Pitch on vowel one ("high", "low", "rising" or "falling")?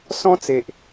high